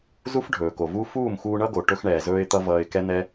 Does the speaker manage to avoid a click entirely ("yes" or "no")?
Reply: yes